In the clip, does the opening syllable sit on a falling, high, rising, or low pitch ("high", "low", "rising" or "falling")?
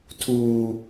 high